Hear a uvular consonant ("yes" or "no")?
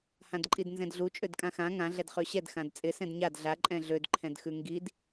yes